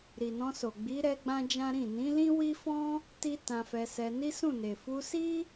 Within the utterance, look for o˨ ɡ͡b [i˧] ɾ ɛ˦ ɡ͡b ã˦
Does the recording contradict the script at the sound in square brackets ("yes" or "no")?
yes